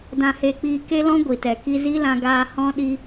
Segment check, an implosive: present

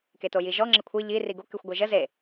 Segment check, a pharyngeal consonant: absent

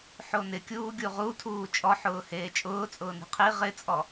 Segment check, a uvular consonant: present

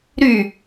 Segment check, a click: absent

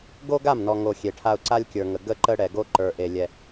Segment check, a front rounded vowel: absent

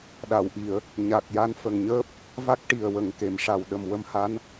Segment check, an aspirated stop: absent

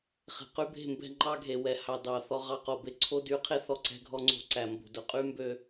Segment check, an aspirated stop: present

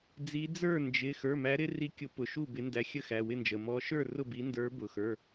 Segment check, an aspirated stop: absent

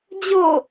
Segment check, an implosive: absent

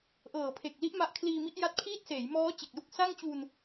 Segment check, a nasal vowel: absent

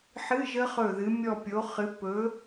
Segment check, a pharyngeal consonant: present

